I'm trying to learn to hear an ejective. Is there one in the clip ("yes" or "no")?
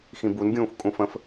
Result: yes